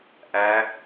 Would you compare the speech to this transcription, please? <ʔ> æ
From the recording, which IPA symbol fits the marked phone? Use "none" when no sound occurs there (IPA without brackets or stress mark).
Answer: ʔ